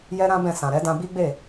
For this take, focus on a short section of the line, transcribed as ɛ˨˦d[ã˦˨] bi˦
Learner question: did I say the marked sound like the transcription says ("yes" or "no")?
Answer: no